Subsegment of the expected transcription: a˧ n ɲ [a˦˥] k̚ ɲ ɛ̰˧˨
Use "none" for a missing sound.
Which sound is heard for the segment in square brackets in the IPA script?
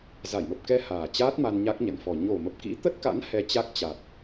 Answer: a˦˥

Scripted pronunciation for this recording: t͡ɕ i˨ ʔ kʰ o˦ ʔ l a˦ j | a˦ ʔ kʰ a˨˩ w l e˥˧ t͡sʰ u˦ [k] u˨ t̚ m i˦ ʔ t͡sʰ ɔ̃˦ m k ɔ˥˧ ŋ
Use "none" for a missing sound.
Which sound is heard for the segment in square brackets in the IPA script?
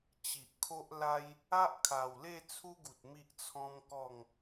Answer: ɡ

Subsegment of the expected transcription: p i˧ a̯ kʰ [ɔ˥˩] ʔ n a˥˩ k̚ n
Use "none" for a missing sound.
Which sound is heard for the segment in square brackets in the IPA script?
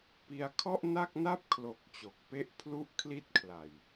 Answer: ɔ˥˩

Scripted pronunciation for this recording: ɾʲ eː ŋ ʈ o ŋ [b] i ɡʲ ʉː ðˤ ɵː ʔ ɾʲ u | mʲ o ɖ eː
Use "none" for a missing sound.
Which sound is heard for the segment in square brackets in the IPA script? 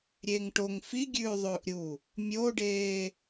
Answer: f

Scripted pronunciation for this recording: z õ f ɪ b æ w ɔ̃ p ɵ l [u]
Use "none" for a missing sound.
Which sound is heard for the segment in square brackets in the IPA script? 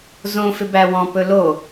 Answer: o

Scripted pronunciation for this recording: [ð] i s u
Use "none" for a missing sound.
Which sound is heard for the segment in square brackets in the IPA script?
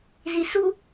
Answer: z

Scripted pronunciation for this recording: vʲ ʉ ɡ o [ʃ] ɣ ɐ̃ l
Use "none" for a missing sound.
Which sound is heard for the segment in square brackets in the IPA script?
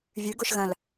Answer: ʃ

